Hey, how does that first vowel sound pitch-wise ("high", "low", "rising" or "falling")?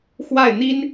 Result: falling